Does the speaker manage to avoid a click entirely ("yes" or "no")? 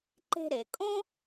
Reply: no